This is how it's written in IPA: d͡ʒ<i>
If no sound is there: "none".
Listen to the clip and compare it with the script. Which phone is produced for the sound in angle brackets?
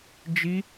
i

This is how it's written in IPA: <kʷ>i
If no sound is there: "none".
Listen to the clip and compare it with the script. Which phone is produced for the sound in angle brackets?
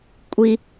kʷʼ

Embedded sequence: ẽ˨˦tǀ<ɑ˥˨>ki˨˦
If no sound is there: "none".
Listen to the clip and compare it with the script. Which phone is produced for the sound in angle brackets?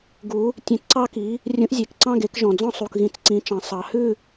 ɑ˥˨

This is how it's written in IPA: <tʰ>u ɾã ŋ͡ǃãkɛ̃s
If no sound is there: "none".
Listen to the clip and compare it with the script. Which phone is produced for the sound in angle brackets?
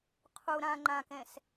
qʰ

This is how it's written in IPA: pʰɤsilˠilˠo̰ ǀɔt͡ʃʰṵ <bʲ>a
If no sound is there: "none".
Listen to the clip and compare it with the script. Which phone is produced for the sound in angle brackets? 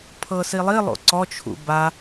b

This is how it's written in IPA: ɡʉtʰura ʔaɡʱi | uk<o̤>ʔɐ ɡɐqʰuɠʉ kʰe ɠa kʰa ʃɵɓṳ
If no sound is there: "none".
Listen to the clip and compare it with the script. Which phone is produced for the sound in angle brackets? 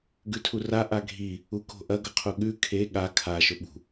o̤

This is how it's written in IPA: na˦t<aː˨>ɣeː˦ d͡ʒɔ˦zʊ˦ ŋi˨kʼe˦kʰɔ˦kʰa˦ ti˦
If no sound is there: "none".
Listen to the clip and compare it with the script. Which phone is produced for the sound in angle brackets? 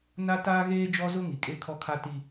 aː˦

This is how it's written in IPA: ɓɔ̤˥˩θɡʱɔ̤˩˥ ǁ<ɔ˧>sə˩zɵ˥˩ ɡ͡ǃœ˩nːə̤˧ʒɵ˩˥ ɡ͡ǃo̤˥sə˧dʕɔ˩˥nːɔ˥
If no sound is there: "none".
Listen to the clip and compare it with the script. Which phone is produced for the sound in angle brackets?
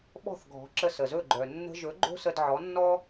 ə˧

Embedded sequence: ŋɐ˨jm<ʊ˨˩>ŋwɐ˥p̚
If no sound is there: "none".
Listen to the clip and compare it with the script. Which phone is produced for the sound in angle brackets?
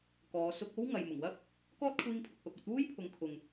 ʊ˨˩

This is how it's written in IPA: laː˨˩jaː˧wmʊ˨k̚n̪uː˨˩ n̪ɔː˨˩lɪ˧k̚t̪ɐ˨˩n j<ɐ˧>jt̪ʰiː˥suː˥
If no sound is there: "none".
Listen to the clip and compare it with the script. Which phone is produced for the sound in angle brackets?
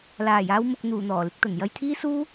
ɐ˧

